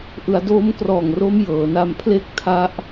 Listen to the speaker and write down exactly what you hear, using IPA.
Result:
ʔ ɯ˩˦ a̯ d o˦˥ m k r ɔː˨˩ ŋ r o˦˥ m j ɤː˩˦ n a˧ m pʰ l e˥˩ k̚ tʰ a˦˥ ʔ

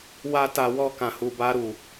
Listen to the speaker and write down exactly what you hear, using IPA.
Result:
w a˦ t a˧ w ɔ˧ k ã˨ h u˨ b a˧ ɾ u˨

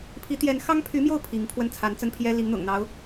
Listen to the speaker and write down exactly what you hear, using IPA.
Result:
pʰ i˧˥ t̪ j ɛ˧˥ n x ɑ˥ ŋ pʰ y˧˥ m j o˥˩ ʊ̯ pʰ i˧˥ ŋ pʰ w ə˥˩ n t͡sʰ a˧˥ n t͡s ə˥ n pʰ j ɛ˥ l i˧˥ ŋ n̪ ʊ̰˨˩ ŋ n̪ ɑ˧˥ ʊ̯

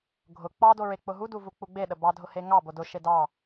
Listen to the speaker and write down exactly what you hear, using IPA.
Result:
ɡʱ ʊ k͡p ɑ d o ɹ e k͡p ʊ ɦ u d u v u k͡p u ɡ͡b e ɗ ə b ɑ dʱ ʊ h e ŋ ɑ b o d ʊ ʃ e d ɑ

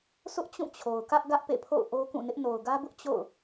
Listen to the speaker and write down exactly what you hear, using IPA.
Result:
sʰ ʊ˦ ʔ t͡ɕ ũ˦˨ t͡ɕʰ o˨ ʊ̯ k ä˦ ʔ ɡ ä˦ ʔ p ḛ˦˨ pʰ o̰˦˨ ʊ̯ ʔ o˦ k ũ˦˨ n ɪ˦ ʔ n o˨ ʊ̯ ɡ ä˦ b ʊ˦ ʔ t͡ɕ o̰˦˨ ʊ̯

